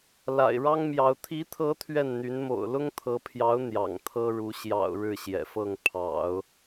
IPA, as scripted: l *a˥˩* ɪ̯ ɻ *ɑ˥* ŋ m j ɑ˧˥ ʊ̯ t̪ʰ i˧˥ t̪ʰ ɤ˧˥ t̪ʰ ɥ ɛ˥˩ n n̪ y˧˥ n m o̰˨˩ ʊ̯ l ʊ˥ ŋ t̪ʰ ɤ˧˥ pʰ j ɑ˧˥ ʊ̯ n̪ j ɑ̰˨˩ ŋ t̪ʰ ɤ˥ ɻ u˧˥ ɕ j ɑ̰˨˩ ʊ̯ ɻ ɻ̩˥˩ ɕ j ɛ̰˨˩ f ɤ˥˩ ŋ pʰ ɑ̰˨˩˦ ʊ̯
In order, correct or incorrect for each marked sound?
incorrect: a̰˨˩, correct

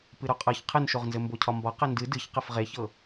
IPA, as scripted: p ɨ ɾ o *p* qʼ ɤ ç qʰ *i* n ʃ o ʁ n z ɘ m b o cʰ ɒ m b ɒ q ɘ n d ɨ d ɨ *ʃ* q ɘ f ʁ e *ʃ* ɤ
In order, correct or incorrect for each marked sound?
incorrect: none, incorrect: ɨ, incorrect: ç, incorrect: ç

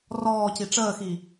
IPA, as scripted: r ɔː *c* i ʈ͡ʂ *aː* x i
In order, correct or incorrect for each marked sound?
correct, incorrect: əː

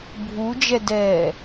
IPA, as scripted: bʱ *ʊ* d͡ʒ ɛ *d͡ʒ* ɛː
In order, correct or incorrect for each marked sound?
incorrect: u, incorrect: d

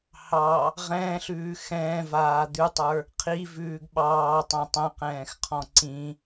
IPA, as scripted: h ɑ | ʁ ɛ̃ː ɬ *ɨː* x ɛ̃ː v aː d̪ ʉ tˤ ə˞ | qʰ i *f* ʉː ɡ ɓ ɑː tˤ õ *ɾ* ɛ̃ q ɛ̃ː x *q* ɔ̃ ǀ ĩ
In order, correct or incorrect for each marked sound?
incorrect: ʉː, incorrect: v, incorrect: tˤ, incorrect: qʰ

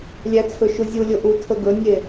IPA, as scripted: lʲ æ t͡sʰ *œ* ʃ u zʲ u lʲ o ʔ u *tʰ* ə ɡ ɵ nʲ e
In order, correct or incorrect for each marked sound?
incorrect: ɵ, correct

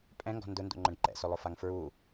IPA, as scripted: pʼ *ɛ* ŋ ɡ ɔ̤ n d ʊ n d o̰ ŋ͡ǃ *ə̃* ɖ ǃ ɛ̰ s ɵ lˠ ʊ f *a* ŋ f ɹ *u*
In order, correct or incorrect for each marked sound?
incorrect: ɛ̃, correct, correct, correct

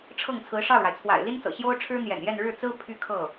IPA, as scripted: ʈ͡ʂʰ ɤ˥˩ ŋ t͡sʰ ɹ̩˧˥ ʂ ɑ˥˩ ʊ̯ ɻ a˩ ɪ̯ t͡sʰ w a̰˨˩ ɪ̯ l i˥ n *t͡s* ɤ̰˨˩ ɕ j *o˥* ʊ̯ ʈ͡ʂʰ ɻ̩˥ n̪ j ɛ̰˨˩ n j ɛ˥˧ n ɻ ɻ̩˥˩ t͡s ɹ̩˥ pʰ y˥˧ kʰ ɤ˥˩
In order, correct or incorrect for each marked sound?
correct, correct

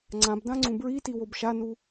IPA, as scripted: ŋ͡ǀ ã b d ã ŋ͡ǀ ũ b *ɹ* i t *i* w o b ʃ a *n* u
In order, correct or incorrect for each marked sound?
correct, correct, correct

